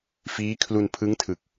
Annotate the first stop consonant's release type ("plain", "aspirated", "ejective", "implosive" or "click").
aspirated